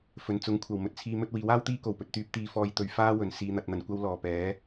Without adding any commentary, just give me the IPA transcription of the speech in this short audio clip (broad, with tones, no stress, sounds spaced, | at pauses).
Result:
f ɵ˨˩ n t͡s ʊ˨˥ ŋ kʷʰ ɐ˨˩ w m ɵ˧ t̚ t͡sʰ iː˨˧ m ɵ˧ t̚ w iː˨˥ w aː˥ w t̪ iː˥ k o˨˩ w p ɵ˨ t̚ t̪ yː˥ p̚ t̪ iː˥ f ɔː˥ j t̪ ɵ˧ ɥ f aː˥ w ɵ˨˩ n s iː˨ n̪ ɐ˨ t̚ n̪ ɐ˨˩ n kʷ ɐ˧ w l ɔː˨˩ p ɛː˨˥